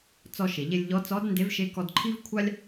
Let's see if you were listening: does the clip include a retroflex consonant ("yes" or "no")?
no